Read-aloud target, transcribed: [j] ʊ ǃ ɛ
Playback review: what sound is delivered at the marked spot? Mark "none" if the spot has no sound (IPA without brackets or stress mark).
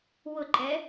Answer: w